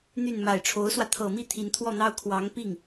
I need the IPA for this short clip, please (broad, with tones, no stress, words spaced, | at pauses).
n̪y˥˩n ma˨˩ɪ̯ʈ͡ʂʰo˧˥ʊ̯swä˧ t̪ʰɤ˨˩mi˥˩ t̪ʰi˧˥nt̪ʰwɔ˥˩n̪ɑ˥ʊ̯ kʰwɑ˧˥ŋpi˥˩ŋ